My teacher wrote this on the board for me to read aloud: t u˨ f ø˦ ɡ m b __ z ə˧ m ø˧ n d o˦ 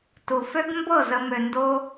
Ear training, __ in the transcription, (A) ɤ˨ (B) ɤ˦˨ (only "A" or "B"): B